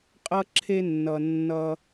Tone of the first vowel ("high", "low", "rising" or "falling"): high